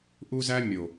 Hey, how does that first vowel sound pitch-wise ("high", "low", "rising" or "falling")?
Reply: high